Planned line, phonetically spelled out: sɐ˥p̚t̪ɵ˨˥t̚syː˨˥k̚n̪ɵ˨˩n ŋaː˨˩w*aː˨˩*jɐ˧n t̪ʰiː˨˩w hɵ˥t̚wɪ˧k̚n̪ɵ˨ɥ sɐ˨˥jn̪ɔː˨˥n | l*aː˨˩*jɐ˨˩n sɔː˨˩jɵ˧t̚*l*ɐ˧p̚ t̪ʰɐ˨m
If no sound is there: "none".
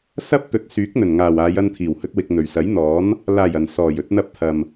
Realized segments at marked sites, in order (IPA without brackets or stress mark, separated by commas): aː˨˧, aː˨˩, n̪